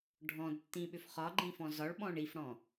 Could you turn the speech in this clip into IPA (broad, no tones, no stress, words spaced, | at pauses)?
ɖʱɔ̃dtːĩɓʏf χɒɡ͡ǃĩfɔ̃ zɒɭɓɔ̃ɳ ifɽɔ̃